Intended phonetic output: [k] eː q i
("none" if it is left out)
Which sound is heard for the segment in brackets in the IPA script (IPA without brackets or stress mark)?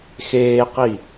x